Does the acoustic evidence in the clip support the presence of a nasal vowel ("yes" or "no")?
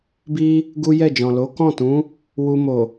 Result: yes